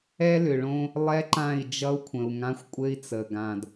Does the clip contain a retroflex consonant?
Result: yes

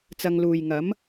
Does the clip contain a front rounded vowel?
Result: no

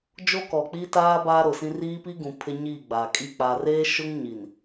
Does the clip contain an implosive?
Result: no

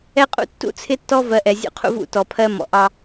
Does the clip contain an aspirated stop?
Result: yes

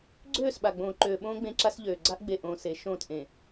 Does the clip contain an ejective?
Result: no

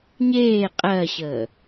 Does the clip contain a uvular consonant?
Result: yes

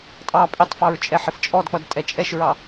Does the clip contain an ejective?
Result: yes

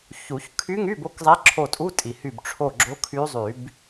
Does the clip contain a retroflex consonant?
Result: yes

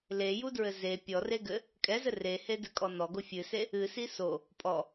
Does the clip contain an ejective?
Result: yes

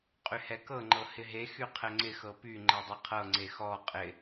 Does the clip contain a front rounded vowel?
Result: yes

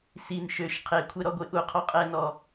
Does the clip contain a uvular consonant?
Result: yes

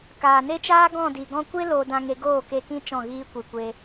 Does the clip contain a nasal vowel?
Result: yes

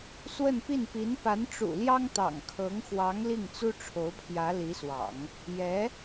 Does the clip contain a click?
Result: no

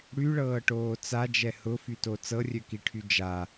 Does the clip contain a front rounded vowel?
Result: yes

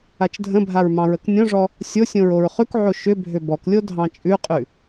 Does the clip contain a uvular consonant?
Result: yes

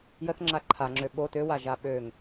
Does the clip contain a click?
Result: yes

